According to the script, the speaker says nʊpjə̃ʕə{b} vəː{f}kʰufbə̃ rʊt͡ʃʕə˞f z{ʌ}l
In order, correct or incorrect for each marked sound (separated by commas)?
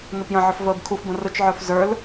incorrect, incorrect, incorrect